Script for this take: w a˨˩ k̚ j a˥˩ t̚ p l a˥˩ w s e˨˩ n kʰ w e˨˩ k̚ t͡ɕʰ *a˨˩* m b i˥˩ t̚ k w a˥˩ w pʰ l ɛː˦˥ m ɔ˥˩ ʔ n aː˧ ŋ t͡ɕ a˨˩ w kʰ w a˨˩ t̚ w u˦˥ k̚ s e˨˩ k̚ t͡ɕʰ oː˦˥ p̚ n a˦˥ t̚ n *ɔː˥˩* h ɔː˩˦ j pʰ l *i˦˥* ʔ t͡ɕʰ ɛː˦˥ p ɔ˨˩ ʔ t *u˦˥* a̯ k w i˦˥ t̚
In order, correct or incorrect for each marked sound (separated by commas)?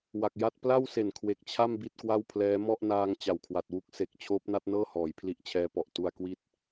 incorrect, incorrect, correct, incorrect